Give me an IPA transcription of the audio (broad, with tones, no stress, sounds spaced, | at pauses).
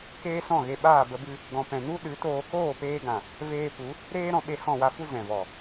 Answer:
k eː˦ s ɔ̃˦˨ ɣ e˧ ɓ aː˦˨ b ə˧ b ɨ˧ | ɡ ɔ̃˨ p ɛ̃˨ n u˦ ɗ ɨ˨˦ t oː˧ k oː˦˨ p eː˧ ɡ ã˨ | v eː˧ p u˨˦ | ɾ eː˦ ɾ ɔ̃˧ ɓ e˧ h ɔ̃˦˨ w a˧ f u˦ z ɛ̃˨ v ɔ˨